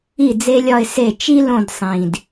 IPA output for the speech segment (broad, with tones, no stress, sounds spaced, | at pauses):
i˥˩ d͡z e˥ lʲ ɒ˥˧ ɪ̯ s e˥˩ t͡ʃ i˥ l õ˥˧ d sˤ ĩ˨˩ d